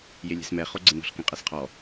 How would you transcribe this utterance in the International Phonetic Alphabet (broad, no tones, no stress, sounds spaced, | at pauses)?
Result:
j e lʲ ɛ̤ s m ɛ χ o ɡ͡ǀ ɪ n ɔ̤ ɬ k ẽ qʼ ɛ s qʰ ɔ